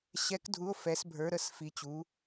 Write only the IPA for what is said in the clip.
ɕɛ˧˥kdʱu˧˥o̯ fɛ˧˥sbʱə˞˧˥ɾə˧˥s fi˧˥t͡ɕu˧˥

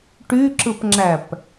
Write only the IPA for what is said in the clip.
ʈyǁɯpŋ͡ǁæp

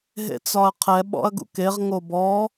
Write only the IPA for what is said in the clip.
ɦḛt͡sɒɐ̯qʰɛ ɓɔ̰ɐ̯ɡṵkeʁ ŋobɔ

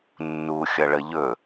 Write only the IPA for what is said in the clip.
nːu xʲʌɭəʎɵ

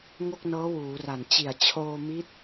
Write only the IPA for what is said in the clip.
ŋo˥˩k̚nɤː˦˥wuː˩˦ra˨˩n t͡ɕi˨˩a̯t͡ɕʰoː˧mi˦˥t̚

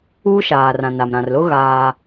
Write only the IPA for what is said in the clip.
uː˦ʃaː˨rã˨na˨m ɾã˨rlʊ˦ ɣaː˦

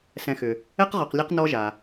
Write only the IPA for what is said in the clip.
sɛ̃˨xʏ˩ | ɛ˥qʁɔ˨qlʲɛ˦q nɔ˦ʒa˩

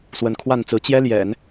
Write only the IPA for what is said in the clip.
swə˧˥nkʰwa˥˩nt͡sɹ̩˧˥ t͡ɕjɛ˥ljɛ̰˨˩˦n

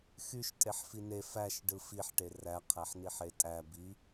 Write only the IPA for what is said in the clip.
xyʃ tʼeħfine fæʃ ɖɯfiħʈe ræqʰæħniħ etʼæ bi

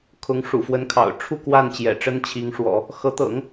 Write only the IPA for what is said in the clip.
kʰʊ˧˥ŋʂṵ˨˩fwə˧˥nkʰɑ̰˨˩ʊ̯ ʈ͡ʂʰu˥˧ kwa˥˩nt͡ɕjɛ̰˨˩ ʈ͡ʂə˥nt͡ɕʰi˧˥ŋʂwɔ̰˨˩˦ | xɤ˧˥t̪ɤ̰˨˩˦ŋ

